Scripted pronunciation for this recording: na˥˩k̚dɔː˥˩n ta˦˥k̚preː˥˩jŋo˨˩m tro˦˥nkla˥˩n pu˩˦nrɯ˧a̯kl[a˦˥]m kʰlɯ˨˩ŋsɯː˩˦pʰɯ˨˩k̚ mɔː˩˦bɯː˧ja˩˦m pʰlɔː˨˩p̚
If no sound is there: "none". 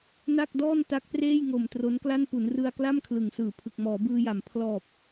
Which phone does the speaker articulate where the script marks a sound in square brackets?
a˥˩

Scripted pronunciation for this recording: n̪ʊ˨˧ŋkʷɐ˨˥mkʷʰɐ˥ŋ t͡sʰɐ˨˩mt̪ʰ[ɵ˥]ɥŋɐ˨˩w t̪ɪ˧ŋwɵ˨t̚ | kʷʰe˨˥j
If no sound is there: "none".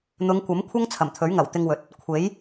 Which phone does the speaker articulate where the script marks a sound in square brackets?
ɵ˨˥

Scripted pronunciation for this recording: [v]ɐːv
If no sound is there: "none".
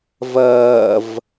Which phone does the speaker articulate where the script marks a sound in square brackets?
v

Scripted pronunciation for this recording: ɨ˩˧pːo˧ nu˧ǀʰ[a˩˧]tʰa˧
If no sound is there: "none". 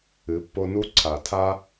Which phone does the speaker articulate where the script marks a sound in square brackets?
a˩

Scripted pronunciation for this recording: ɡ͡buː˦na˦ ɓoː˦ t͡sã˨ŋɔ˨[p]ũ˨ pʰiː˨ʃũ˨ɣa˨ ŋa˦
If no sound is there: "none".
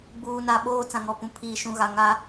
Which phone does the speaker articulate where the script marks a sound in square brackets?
p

